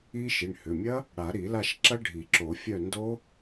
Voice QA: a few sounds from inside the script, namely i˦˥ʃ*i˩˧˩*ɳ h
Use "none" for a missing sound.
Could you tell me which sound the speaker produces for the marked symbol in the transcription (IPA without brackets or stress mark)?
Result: i˩˧˩